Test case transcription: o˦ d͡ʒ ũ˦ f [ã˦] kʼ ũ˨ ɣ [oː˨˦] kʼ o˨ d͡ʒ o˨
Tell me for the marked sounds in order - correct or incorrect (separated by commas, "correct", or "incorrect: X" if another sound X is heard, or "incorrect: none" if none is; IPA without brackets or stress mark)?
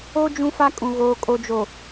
incorrect: a˦, incorrect: oː˨